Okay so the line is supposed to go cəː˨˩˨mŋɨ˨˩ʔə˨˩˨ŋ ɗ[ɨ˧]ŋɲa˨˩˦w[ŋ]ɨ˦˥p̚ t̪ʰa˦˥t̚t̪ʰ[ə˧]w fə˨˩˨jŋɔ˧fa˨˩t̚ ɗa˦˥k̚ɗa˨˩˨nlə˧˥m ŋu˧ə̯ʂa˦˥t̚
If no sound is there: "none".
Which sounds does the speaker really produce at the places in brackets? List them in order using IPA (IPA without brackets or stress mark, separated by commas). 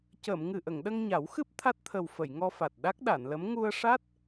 ə˧, x, ə˨˩